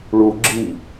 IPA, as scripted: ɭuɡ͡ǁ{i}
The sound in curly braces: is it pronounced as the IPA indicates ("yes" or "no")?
yes